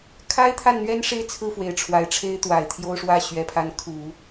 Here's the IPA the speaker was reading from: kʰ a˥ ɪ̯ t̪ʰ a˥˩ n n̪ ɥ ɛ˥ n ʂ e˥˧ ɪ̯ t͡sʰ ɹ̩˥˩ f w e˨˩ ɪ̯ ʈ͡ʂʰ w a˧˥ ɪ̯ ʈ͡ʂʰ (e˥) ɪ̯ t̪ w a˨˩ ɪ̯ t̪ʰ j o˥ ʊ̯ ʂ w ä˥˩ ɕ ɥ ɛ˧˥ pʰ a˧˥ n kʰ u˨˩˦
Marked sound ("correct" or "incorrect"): correct